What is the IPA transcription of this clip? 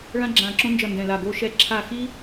ɭ ã˥ ɡ͡ǁ ãː˦˨ ǁ õ˥ n d͡ʒ ʌ˦˨ n d ɛ̃˦˨ l a˦˨ ɡ o˥ ʃ ɛ˥ ǁʰ a˦˨ x i˥

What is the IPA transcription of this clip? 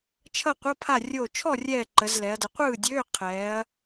t͡ʃʰ ʌ˥˨ qʷ ʌ˧˥˧ pʰ a˥˨ rʲ oː˧˩ t͡ʃʰ ɔ˥˨ rʲ ɛː˧˩ ǃ ə˩˧ z l ɛ˩˧ ɐ̯ d ə˩˧ qʷ ɯː˥˨ dʲ øː˧˥˧ qʰ ɛː˩˧ ɐ̯

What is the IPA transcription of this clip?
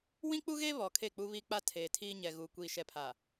w ĩ˦ k͡p u˦ ɣ e˦ β ɔ˨ kʰ e˦˨ k͡p u˦ β i˦ k͡p a˦ tʰ eː˨ tʰ iː˦ ɲ ɛ˨ ɣ u˨ kʷ iː˨ ʃ ɛ˨ pʰ a˨

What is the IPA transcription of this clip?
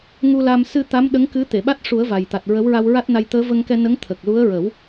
ŋ u˧ l a˧ m s ɨ˧ t̪ a˧˥ m ɗ ə˧˥ ŋ k ɨ˧˥ t̪ e˨˩˨ ɓ a˦˥ t̚ ʂ u˨˩˦ ə̯ v a˨˩ j t̪ a˨˩ t̚ ɹ ə˧˥ w ɹ a˧ w ɹ a˦˥ t̚ n a˧ j t̪ əː˧˥ v ə˧ ŋ k ɛ˧ n ə˧˥ ŋ t̪ʰ əː˨˩ k̚ l u˧˥ ə̯ ɹ ə˨˩˦ w

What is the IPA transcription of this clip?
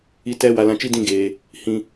i˨ t ɛ˨ w a˨ l ã˨ t͡ʃ i˦ d ĩ˦˨ ɡ eː˨ | h ĩ˦

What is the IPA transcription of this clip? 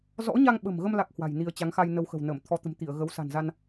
z ɔ̰˧˥ ɲ a˧ ŋ ɓ ə̤˨˩ m ɣ ə˧ m l a˦˥ k̚ h w a̤˨˩ j n i˧ ə̯ t͡ɕ a˨˦ ŋ x a˧ j n ə˧ w x ə̤˨˩ w n ə˧˩ m t̪ʰ ɔ˨˦ t̪ ə̤˨˩ m t̪ i˧˩ ə̯ ɣ ə˨˦ w s a̤˨˩ n z a˧ n

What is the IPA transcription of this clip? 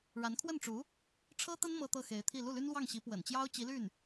ɻ a˧˥ n kʰ w ə˥˩ n ʈ͡ʂ u˧˥ | ʈ͡ʂʰ ɤ˥ t̪ ə˥ n m ɤ˥ t̪ ɤ˥˩ x e˧˥ ɪ̯ t̪ʰ i˥˧ l u˥˩ l y˥ n l w ɑ˥˩ ŋ ɕ i˧˥ p w ə̰˨˩ n t͡ɕ j ɑ˥ ʊ̯ t͡ɕ i˧˥ l y˥˩ n

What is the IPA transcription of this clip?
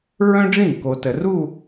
ɹ œ̃˥ ɖ͡ʐ ĩ˥˩ k o˨ t ə˨ r u˥˧

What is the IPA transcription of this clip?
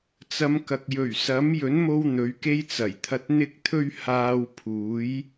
t͡s ɐ˨˧ m k ɐ˨ k̚ j ɵ˨˩ ɥ s ɐ˨˥ m j ɵ˨˥ n m o˥ w n̪ ɵ˨˥ ɥ k e˥ j t͡s ɐ˨˩ j t̪ʰ ɐ˧ t̚ n̪ ɪ˥ k̚ t̪ʰ ɵ˥ ɥ h aː˧ w pʰ uː˨˥ j

